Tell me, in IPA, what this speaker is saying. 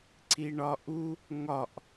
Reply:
ǀ i ɳ ɒ ʔ u | ŋ ɒ ʔ

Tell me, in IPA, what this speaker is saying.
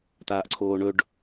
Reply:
t̪ aː ʔ ǀʰ oː ɳ ɵ ɖ

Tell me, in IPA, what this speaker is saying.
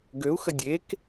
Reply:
ɡ ø u̯ x ə dʲ e k

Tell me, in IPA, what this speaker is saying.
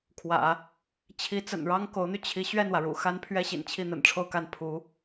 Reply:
kʰ w ä̰˨˩˦ | t͡ɕʰ i˧˥ t͡s ə̰˨˩ n ɻ ɑ˥ ŋ k o˧˥ ʊ̯ n̪ y˧ t͡ɕʰ i˧˥ ɕ ɥ ɛ˥˩ n w ä˩ ɻ ṵ˨˩ x a˥ n pʰ ɥ ɛ˥ ɕ ḭ˨˩ n t͡ɕʰ i˥˩ n̪ ə̰˨˩ n ʈ͡ʂʰ o˥˧ ʊ̯ k a˥˩ n pʰ u˧˥

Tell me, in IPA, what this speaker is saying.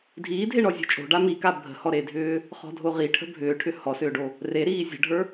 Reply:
dʱ iː dʱ e ɳ ɔ zʲ o̤ t͡ʃʼ o̤ ɖ a m i k a bʱ ə̤ h ɔ ɾ e dʱ ʏː | χ ɔ̤ dʱ o ʁ i ʈʰ ə̤ bʱ ʏː ʈʰ ʏ h ɔ s ʏː ɖ o | r e ɾ iː zʲ ə̤ ɖʱ ə˞

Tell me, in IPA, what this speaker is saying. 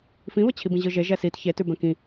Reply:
f ĩ β ə t͡ɕʰ i b ĩ ʑ ɯ ʒ e ʒ ɛ s i t ç e t ʉ b ɛ̃ k ĩ

